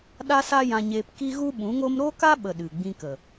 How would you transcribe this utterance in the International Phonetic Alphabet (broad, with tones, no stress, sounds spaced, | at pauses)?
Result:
ɗ a˦ s a˦ j ã˧ ɲ eː˧ p k i˦ ɣ u˦ ɓ ũ˨˦ ŋ o˦ m ɾ o˦ k a˦ ɓ ə˨ ɗ ɨ˨ ɡ͡b ĩ˧ k ə˨